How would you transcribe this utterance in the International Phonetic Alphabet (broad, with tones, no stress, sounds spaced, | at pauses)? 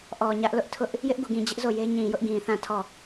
ʔ ɔ˨ ɲ ä˦ ʔ l ʊ˦ ʔ tʰ ʊ˦ ʔ | j ɪ˦ ʔ ɡ u˨ ɡ ĩ˨ d͡ʑ ɪ˦ ʔ z o˦˨ j e˦ ɲ ĩ˨ j ʊ˦ ʔ ɡ ĩ˨ θ ã˦˨ tʰ ɔ˦˨